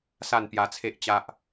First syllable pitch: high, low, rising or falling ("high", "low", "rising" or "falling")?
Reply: falling